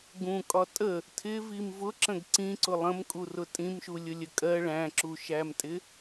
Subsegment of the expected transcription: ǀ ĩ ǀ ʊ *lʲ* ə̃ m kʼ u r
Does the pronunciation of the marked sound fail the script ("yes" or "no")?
yes